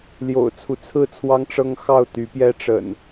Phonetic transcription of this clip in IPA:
ljo̰˨˩ʊ̯t͡sʰu˦t͡sʰɹ̩˥˨t͡sʰwɑ˦ŋ ʈ͡ʂɤ˦ŋxɑ˥˨ʊ̯ t̪y˨˦pjɛ˦ ʈ͡ʂə̰˨˩n

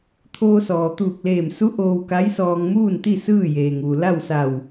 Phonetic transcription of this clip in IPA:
t̪ʰoː˧sɔː˩t̪uː˧˩k̚leː˧˩m su˧˥ ʔoː˧wka˧˥jsɔː˧ŋ muː˥˨nt̪i˥˨ sɯː˥˨jeː˩ŋʋu˩ la˥˨wsa˧˩w

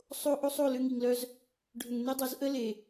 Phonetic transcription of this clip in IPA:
sˤo˦ ʔo˦sˤ o˦˨ lʏ˦ŋi˨ŋlœ˦z | ɖʱʏ˨ŋne˦dˤœ˨˦zʔə˦ le˨

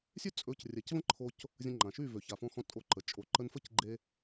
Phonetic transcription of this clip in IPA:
sʲø˦t͡sʼɵ˨˦crʲɛ˨c və̃˦ǃʰo˧c | zʲə̃˧ŋ͡ǃã˨ʃy˦˨ vø˨ça˨fɔ̃˧xɔ̃˧ tʼo˧ǃə˨ t͡ʃʼo˨ ǃə˧nfə˦c ɡ͡ǃe˧

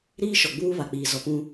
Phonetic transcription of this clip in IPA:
ɾiː˦ʃɔ˨ɡ͡buː˦ βa˨k͡piː˨ zɔ˨pũ˦

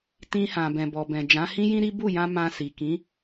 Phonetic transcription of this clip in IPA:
tĩ˧hã˨ bɛ̃˨bɔ˨bɛ̃˨ d͡ʒã˨˦hĩ˦jĩ˦ɾi˦ bu˦˨jã˧ mã˧si˨ kĩ˨˦

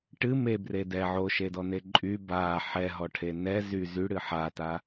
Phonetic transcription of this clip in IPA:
ʈɨ mebre dɛ ʕoʃedɔne ǃʼy ba ħɛɦɔʈʰe nɛ zy zyɽɨ ħata

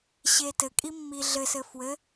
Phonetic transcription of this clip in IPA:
ɕetɘkʼimːi ɮɘsɘ fwɘ

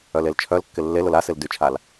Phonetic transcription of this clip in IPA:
œlelt͡ʃʰœlkːɪ lːel ʊlasɪl dyt͡ʃʰal

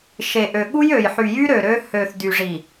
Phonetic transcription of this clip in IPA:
ʃe˨ʔø˨ ɠu˦jø˨j ħy˨jy˦ɾø˨ ɾø˦ hø˨θdy˨ʐi˨

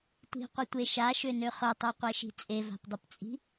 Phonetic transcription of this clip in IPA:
tʷi̤qʷətʷe ʃaʃønø χœtˤœqʷeʃi̤ t͡sʼeva̤pdˤəpt͡sʼi̤

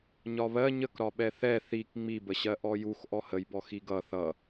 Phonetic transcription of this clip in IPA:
ɲɒβɜ ɲəkɾɒɓɛ θɛ θik ŋ͡mibəɕɜ ʔɔjux ʔɔhəjbɔ xiɡʌ θʌ

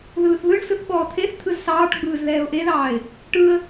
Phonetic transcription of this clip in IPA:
ðɯːθðɯɳsɯθ ɓɔːt̪ʰeθt̪ʰɯz sɑːʈɡ͡bɯːz ðɛːʊ̯ʔeðɑːɪ̯ | ʈɯə̯

